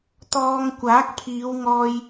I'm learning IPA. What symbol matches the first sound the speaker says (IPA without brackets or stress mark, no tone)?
t̪